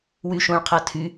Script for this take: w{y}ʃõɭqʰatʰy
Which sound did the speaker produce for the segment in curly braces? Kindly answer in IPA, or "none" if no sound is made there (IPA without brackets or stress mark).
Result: y